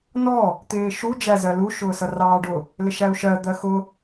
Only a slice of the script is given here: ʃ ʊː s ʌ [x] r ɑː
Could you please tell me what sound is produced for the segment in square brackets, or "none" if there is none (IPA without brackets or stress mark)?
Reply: none